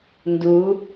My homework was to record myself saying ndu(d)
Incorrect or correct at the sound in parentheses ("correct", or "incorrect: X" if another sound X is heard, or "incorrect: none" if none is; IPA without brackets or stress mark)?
incorrect: none